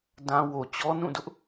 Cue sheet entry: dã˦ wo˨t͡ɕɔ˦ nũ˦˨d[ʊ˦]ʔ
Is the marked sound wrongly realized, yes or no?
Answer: no